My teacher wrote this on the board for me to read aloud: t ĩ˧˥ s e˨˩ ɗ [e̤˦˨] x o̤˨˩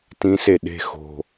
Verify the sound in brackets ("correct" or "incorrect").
correct